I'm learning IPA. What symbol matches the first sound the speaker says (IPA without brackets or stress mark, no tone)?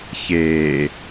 ç